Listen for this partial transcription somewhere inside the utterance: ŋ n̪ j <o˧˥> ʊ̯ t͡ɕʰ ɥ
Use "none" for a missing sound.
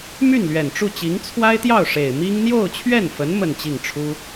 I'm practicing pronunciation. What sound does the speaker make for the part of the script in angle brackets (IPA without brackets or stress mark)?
o˥˧